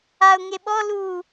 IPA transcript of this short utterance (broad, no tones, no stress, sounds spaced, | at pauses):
a ʊ̯ ŋ e ɓ ɔ l u